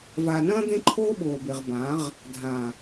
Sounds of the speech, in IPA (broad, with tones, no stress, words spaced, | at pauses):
vaː˨nɐ̃ː˦ d̪ẽ˦ǃʰoː˦ɓoː˨be˨ʁ bã˨˦ʁ | dʱã˨